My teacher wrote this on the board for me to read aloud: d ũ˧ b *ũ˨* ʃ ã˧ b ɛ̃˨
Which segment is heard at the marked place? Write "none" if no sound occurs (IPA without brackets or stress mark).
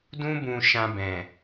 ũ˨